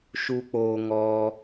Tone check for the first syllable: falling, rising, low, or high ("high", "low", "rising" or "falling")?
high